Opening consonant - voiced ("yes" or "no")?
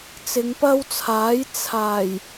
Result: no